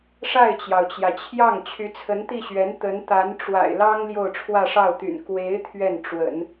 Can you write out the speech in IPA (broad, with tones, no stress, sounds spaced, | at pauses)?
ʂ a˥˩ ɪ̯ t͡ɕ j ɑ˩ ʊ̯ t͡ɕ j ä˩ t͡ɕʰ j ɑ˥˩ ŋ t͡ɕʰ y˧˥ t͡sʰ ə˧˥ n t̪ i˥˩ ɕ ɥ ɛ˧˥ n t̪ ə˧˥ n t̪ a˧˥ n ʈ͡ʂ w a̰˨˩ ɪ̯ l ɑ˥ ŋ l j o˥˧ ʊ̯ ʈ͡ʂʰ w ä˥˧ ʂ ɑ˥˩ ʊ̯ t̪ y̰˨˩ n k w e˧˥ ɪ̯ t̪ʰ ɥ ɛ˥˩ n ʈ͡ʂ w ə̰˨˩˦ n